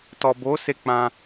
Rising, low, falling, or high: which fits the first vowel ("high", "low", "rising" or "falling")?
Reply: low